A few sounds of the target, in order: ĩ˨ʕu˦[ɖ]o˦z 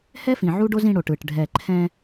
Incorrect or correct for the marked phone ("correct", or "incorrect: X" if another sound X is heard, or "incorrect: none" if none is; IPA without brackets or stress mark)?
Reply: correct